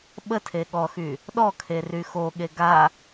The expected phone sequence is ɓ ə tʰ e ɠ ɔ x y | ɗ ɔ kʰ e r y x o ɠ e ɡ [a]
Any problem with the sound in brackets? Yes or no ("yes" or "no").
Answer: no